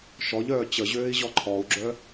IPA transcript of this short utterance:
ʃ ɔ ʎ œː t͡ɕ ə ʑ øː i̯ ʑ ɔ ǃʰ ɔ u̯ ɡ͡ǁ œ

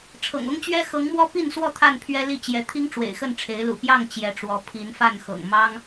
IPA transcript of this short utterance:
ʈ͡ʂʰ ɤ̰˨˩ ŋ ʊ˦ ŋ t͡ɕ ɥ ɛ˦ x ɤ˨˦ ŋ m w ɔ˦ p i˥˨ n s w ɔ˥˨ t̪ʰ a˥˨ n pʰ ɥ ɛ˦ l i˥˨ t͡ɕ j ɛ˨˦ t̪ʰ i˦ ŋ ʈ͡ʂ w ḛ˨˩ ɪ̯ x ə˥˨ n ʈ͡ʂʰ e˨˦ ɪ̯ l ṵ˨˩ p j ɑ˥˨ ŋ t͡ɕ j ɛ˨˦ ʈ͡ʂ w ɔ˨˦ pʰ i˨˦ n f a˥˨ n x ɤ̰˨˩ ŋ m ɑ˦ ŋ

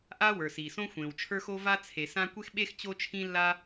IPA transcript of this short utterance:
ʔ a˥ w ə˞˩ s i˩ s õ˥ xʷ ẽ˩ w t͡ʃʰ ə˞˥ x o˥ v a˥ t͡sʰ e˩ s ã˥ kʷ e˥ x ɓ e˥ x t͡ɕ o˥ t͡ʃʰ ĩ˥ lː a˥

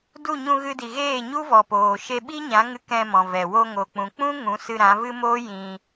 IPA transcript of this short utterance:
d u˦˨ ɲ ũ˧ ɣ ɨ˧ d i˨ ɣ eː˦˨ ɲ u˦ v ɔ˨ p oː˨ ʃ e˧ ɓ i˦ ɲ ã˨˦ ŋ ɨ˧ k ɛ̃˧ m ɔ̃˨ v ɛ˨ w o˧ ŋ o˨ k͡p ũ˨ k͡p ũ˦ ŋ ũ˨˦ s ɨ˧ ɾ ã˨˦ v ɨ˦ m oː˦ j ĩ˧

